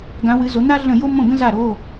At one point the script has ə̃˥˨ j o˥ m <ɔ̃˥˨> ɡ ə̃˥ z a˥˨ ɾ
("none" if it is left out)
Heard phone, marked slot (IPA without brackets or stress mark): õ˥˨